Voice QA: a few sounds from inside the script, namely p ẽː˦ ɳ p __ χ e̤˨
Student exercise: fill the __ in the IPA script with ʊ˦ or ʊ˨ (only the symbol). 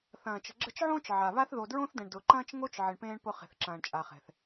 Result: ʊ˦